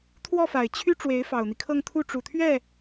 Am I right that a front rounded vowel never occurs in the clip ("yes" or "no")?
no